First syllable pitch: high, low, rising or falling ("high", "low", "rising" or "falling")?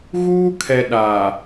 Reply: high